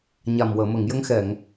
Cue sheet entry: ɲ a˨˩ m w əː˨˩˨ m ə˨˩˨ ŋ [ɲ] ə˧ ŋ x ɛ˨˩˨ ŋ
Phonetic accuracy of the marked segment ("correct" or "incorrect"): incorrect